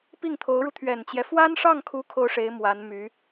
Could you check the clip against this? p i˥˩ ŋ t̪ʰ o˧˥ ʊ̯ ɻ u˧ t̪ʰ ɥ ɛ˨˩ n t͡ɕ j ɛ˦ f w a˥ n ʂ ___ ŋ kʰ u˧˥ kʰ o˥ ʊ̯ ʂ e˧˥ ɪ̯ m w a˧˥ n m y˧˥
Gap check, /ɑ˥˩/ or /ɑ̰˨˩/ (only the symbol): ɑ˥˩